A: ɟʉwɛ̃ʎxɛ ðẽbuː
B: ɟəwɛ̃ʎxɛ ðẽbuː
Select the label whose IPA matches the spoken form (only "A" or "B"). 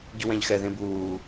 A